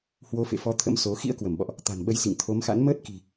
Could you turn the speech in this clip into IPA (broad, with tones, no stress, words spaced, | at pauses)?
hwo˨˦fḛ˧˨fɔ˨˦ t̪ʰə̰˧˥mso˨˦ xḭ˧˥ə̯kwə˧˩mɓɔ̰˧˨ʔ | t̪a̤˨˩nɓə˨˦jsḭ˧˨ŋ t̪ʰo˨˦mxa̰˧˥n məː˦˥t̚ki̤˨˩